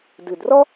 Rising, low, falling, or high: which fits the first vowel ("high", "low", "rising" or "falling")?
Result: low